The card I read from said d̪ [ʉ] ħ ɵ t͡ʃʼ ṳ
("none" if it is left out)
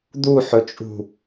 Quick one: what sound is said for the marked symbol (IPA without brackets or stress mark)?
u